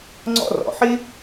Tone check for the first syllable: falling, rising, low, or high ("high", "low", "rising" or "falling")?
high